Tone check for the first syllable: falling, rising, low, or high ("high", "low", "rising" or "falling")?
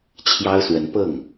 high